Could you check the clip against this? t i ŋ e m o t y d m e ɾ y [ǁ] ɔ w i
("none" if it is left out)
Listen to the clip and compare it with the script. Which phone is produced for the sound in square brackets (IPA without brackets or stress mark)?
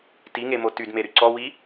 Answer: ǀ